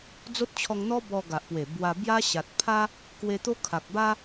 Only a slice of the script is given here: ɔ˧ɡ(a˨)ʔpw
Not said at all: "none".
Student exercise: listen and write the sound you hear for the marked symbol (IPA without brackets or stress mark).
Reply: a˨